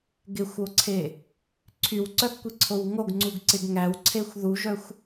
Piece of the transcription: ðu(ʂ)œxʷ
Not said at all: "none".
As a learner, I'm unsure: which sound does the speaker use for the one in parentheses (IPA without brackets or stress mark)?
ʒ